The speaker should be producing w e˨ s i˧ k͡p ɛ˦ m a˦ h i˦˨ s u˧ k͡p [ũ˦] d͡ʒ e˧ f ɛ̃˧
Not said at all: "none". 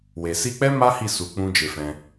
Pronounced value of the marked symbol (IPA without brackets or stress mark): ũ˦